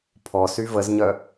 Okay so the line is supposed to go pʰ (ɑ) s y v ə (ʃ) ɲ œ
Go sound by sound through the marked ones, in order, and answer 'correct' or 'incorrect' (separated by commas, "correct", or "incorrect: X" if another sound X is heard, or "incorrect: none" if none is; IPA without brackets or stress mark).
incorrect: ɔ, incorrect: z